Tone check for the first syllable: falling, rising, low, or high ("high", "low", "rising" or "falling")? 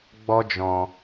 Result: high